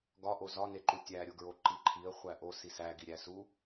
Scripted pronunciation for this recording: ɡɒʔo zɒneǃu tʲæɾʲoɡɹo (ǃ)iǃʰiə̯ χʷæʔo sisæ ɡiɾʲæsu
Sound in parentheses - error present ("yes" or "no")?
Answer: no